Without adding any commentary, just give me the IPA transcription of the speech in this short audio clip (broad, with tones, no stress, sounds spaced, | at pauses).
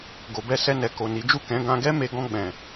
ɡ o˨ b ɛ˧ s ɛ˧ n ɛ˨ k o˨ n i˨˦ d͡ʒ u˦˨ k ɛ̃˨˦ ɡ ã˧ ɡ ɛ˦ m e˧ ɡ ɔ̃˧ ɡ͡b ɛ̃˨